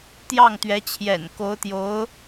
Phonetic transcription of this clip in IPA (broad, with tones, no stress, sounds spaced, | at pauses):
t̪ j ɑ˥˩ ŋ t̪ ɥ ɛ˧˥ t͡ɕʰ j ɛ̰˨˩ n k o˧˥ ʊ̯ t̪ j o˧˥ ʊ̯